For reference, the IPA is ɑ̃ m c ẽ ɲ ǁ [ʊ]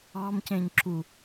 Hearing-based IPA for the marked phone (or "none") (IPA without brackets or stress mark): u